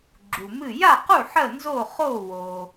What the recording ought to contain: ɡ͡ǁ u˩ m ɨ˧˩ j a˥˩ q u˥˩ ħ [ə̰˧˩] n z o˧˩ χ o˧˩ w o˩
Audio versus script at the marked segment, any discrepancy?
yes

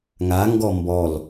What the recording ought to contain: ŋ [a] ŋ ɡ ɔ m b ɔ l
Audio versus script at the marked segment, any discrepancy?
no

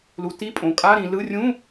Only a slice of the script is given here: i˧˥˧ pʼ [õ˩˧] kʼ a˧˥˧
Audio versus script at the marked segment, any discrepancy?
no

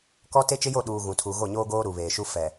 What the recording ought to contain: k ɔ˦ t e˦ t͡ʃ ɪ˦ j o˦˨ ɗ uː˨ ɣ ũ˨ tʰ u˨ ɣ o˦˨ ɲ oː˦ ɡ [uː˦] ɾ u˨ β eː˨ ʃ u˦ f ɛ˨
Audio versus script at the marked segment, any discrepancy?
yes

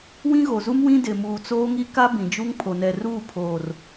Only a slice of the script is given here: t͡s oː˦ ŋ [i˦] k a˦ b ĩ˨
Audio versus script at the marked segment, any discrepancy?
no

